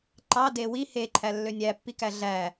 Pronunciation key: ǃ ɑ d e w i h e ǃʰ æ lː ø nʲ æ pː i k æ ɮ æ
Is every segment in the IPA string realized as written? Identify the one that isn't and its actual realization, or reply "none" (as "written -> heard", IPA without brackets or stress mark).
none